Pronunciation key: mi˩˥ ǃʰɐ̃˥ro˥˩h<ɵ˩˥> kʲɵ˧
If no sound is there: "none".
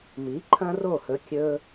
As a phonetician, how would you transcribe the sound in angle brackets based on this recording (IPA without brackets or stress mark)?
ɵ˩˥